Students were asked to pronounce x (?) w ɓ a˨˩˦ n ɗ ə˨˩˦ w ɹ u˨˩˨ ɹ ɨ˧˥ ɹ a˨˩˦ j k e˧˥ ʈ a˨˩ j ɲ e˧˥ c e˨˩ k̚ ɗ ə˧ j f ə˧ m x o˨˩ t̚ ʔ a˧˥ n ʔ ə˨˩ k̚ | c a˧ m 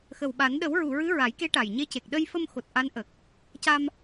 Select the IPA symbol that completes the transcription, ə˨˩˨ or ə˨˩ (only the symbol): ə˨˩